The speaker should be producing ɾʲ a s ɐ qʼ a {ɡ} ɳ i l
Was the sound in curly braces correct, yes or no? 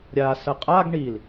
yes